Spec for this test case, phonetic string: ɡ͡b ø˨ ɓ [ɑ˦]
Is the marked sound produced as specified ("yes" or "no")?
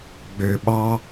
yes